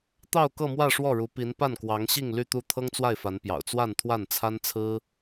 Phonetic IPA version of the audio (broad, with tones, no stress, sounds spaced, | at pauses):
t̪ ɑ˥˧ ʊ̯ k ɤ˥˧ m w ä˥˧ ʂ w ɔ˥˩ ɻ u˧˥ p i˧˥ n p a˥˩ n k w ɑ˧˥ ŋ ɕ i˥˧ ŋ l y˥˧ t̪ u˥˩ t̪ʰ ɤ˥ ŋ t͡s w a˥˩ ɪ̯ f a˧˥ n p j ɑ̰˨˩ ʊ̯ t͡s w a˥˧ n t̪ʰ w a˥˩ n t͡sʰ a˥ n t͡sʰ ɹ̩˥